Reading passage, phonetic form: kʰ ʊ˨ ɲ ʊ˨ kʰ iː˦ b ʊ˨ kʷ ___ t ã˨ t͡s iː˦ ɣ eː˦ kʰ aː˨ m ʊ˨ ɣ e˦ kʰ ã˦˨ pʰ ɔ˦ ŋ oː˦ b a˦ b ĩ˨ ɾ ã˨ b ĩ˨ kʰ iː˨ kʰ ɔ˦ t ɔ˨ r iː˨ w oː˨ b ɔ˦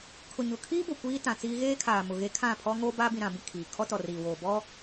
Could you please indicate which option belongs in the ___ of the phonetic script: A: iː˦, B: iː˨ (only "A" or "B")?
A